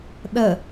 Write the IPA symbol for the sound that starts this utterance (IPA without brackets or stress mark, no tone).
ɗ